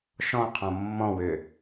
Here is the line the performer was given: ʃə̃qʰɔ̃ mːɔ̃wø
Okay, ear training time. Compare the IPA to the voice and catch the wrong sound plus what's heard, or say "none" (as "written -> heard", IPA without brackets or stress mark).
ə̃ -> ɔ̃